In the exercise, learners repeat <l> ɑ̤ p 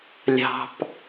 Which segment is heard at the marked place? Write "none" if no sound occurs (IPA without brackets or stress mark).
lʲ